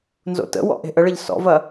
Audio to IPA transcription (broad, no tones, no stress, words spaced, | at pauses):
nzo̰tə̰wɔ̰ ʔe̤ʔəɭəʎ sɔ̰vɐ